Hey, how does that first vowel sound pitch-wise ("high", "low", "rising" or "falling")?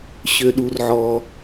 low